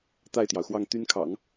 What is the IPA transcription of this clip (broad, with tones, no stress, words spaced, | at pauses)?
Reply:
t̪a˥˩ɪ̯t̪jɑ˩ʊ̯xwɑ˥˩ŋ t̪y˥nkʰɑ̰˨˩˦ŋ